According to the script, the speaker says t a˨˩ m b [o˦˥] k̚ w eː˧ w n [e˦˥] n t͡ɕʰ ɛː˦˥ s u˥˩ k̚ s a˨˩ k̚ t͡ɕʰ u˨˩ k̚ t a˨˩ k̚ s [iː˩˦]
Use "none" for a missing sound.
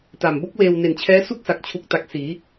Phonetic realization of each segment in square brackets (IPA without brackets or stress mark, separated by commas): o˦˥, e˨˩, iː˩˦